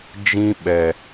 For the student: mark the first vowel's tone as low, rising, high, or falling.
high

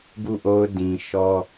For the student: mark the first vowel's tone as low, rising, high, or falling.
falling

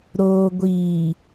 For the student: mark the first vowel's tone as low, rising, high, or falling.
low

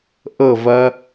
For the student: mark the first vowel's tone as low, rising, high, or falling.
falling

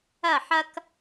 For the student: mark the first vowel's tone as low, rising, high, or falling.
falling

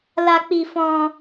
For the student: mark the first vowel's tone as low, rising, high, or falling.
high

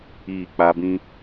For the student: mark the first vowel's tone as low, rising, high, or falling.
falling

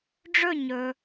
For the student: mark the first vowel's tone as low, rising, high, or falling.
falling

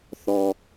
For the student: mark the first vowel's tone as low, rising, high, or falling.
low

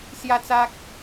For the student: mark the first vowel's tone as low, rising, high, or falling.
high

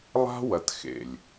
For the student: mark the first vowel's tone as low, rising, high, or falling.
high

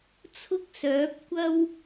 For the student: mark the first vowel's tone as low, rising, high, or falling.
high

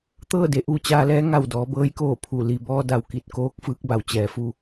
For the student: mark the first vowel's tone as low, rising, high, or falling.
falling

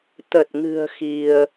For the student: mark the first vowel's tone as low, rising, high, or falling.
low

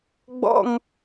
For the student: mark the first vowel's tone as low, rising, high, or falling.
high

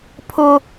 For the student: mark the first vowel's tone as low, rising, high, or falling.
high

